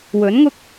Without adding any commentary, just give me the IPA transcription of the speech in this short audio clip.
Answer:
wɵ˨˥nŋʊ˥k̚

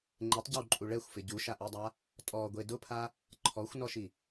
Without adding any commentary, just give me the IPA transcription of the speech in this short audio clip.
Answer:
ŋ͡ǃɪtˤɟawǃʼu ɭɛxʷfɪ ɟuʃaʔidˤa | tʼɔɡʷe dʊpʰa | ǃʰɔxʷnɔʃi

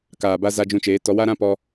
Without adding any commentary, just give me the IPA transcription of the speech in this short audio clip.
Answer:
kaː˨ba˧ za˧d͡ʒũ˧t͡ʃeː˨˦ tɔ˧wa˦ɾã˦ pɔ˧

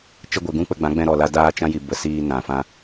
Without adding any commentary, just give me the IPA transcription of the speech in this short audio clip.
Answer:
t͡ʃə˧ɡʷe˨ɡũ˧ k͡pə˧ɡ͡bã˨˦ɡ͡bɛ̃˧ ɾɔ˨la˧ daː˧t͡ʃã˧ ji˨bə˨ siː˧nã˨ fã˧

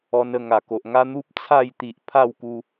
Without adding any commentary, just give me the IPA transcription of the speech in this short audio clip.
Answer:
ɔ˧n ə˥˧ ŋa˨˩ko˨ʔŋa˦ n̪u˦p̚t͡sʰa˥˧j t̪i˨ʔ pʰa˥˧wku˧

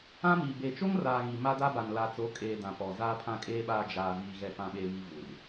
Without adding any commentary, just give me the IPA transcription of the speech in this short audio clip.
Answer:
ã˦miː˨ be˨t͡ʃo˦ŋraː˨ ɣi˨ma˦da˦ba˨n la˨t͡so˨˦kʼeː˨ dã˨pɔ˨ zaː˨pʰã˨kʼeː˨ɓaː˨ d͡ʒaː˨viː˨ ɣɛ˨fã˨ɓeː˨βi˨ vu˨r

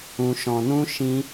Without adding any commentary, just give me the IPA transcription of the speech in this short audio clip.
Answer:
ũ˧ʃɔ̃˧nũ˦ ʃĩ˦

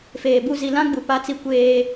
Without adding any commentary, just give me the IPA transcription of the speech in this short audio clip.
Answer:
feː˨bu˦˨ zi˨ lã˦ɡ͡bu˨ pa˦t͡si˦ kʷeː˦

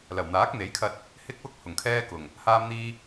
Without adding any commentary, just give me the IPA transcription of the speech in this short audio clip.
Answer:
lɐ˨˩wn̪aː˨˥k̚n̪e˨˥jkʰɐ˧t̚ | hɪ˥k̚wʊ˥k̚ hʊ˨˩ŋkʰɛː˥kʊ˨˩ŋ | haː˥mn̪iː˥

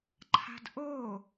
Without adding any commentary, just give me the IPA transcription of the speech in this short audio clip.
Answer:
ǃʰa̤dʔo

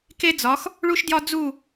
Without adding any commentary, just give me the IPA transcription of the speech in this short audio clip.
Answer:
ke˦d͡zɒ˨˦x | ɭu˦ʃdjɒ˦ d͡zu˦˨

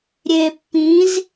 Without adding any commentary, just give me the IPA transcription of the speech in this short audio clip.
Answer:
ɾʲe pːĩz

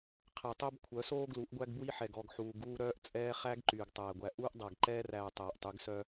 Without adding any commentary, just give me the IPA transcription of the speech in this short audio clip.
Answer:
qʰɛ˨tˤœ˦bkʷʰœ˨˦soː˦ ɡlu˨˦ʔɡʷæ˦ɡbwi˦ ħɛ˨ɡɔ˦˨ɡ ħuː˨ɡuː˦ɾœː˦ʔt͡sʼɛː˦ χæ˦ɡ ǃyː˨ɡtˤæː˨ɡʷæ˨ ʔuː˦ʔdˤæ˨ɡǃɛː˦ræː˨ tˤæː˨ʔtˤy˨˦ɡsœ˦

